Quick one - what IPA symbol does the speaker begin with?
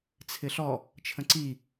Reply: t͡sʰ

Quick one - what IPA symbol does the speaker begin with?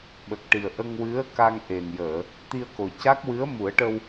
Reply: ɓ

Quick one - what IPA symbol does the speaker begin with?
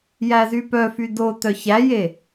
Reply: j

